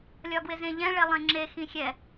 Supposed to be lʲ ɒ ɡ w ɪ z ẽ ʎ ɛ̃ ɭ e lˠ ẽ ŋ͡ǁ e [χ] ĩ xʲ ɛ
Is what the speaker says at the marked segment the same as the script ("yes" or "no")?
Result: no